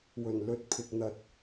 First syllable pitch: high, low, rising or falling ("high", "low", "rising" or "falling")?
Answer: low